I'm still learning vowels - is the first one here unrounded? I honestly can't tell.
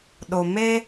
no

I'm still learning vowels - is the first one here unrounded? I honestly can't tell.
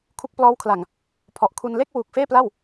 no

